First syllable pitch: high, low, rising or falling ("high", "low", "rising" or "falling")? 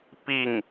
falling